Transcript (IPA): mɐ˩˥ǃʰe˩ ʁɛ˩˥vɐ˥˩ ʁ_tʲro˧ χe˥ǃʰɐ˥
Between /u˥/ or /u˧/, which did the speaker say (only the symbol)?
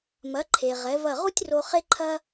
u˥